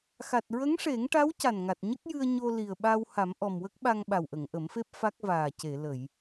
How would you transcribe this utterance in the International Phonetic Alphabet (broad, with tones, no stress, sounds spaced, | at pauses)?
x a˨˩ t̚ ɹ ə˧˥ ŋ ʂ e˨˩˦ ŋ ʈ a˧˥ w c a˨˩ n ŋ a˨˩ t̚ ɲ ə˦˥ k̚ j ɨ˧ ə̯ ɲ o˧ l i˨˩ ə̯ ɓ a˧ w h a˨˩˦ m ʔ ɔ˨˩ m w ə˦˥ k̚ ɓ a˧ ŋ ɓ a˨˩ w ʔ ə˨˩˨ ŋ ʔ ə˨˩˦ m f e˦˥ p̚ f a˦˥ k̚ v aː˨˩ c e˨˩˨ l ə˨˩˨ j